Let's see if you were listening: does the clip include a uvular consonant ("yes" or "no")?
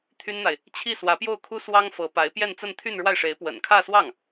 no